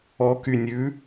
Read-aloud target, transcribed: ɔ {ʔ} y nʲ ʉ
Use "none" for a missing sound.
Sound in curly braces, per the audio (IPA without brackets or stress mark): k